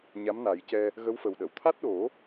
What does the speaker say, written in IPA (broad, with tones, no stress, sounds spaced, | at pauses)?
ɲ a˧˥ m n a˨˩˦ j c ɛ˧ | ɣ ə˧˥ w f ə˨˩ w ɗ ə˨˩˨ w t̪ʰ a˦˥ t̚ ɗ o˨˩˦